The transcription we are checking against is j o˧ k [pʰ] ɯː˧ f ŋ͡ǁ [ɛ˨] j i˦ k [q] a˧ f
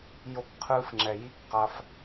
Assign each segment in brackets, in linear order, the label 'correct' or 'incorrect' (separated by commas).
incorrect, correct, correct